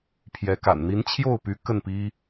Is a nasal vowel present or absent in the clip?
absent